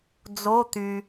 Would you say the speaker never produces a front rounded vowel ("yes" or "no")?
no